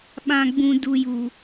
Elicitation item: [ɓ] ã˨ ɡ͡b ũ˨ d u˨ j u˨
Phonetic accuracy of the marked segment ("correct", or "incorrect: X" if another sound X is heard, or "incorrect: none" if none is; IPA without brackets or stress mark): correct